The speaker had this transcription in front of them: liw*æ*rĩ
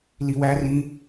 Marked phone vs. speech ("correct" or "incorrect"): correct